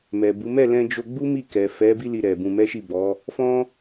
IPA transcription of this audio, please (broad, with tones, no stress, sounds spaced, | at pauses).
m ɛ˨ b u˨˦ m ɛ˦˨ l ɛ̃˧ d͡ʒ o˧ ɡ͡b u˦ m i˦˨ k ɛ˨ f ɛ˨˦ b i˦ l i˧ ɾ ɛ˨ b ũ˧ m ɛ˦ ʃ i˦˨ b ɔ˨˦ | f ɔ̃˦